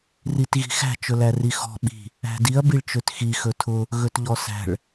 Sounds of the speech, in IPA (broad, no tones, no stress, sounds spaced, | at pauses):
r i t ɣ i̤ x æ̤ t͡ʃ ɵ l æ r i x ɔ̤ ɓ i̤ | æ̤ d i ɐ̯ b i ɭ t͡ʃ ø t x i x ɵ tʰ ʊ | ɣ ɵ t ʎ ɔ s æ̤ ɭ